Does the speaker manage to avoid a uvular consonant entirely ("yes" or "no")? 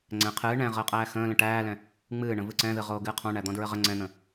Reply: no